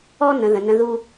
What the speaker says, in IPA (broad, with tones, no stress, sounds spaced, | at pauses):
ɔ˥ n ə̃˩˧ ð ə̃˩˧ n ə̃˧ ð u˧